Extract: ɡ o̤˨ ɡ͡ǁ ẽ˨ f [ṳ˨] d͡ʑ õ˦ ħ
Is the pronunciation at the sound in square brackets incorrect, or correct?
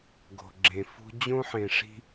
incorrect